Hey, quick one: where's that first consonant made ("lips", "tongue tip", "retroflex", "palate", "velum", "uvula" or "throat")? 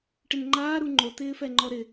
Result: retroflex